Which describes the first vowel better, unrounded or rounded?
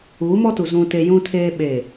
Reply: rounded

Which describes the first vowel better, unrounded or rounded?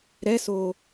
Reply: unrounded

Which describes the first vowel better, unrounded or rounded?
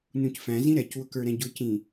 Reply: rounded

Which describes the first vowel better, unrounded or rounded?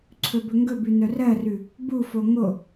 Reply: rounded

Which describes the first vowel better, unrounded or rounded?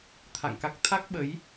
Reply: unrounded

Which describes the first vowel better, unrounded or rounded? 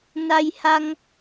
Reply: unrounded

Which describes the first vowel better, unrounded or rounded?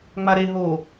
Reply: unrounded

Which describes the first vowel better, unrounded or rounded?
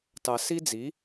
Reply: unrounded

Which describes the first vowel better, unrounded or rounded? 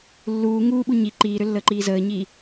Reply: rounded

